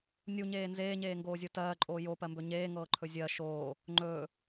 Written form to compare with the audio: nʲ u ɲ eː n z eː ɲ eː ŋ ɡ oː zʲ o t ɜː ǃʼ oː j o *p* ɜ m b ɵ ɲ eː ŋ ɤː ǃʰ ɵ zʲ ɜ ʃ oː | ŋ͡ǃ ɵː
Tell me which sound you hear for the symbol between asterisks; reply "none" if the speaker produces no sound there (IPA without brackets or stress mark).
p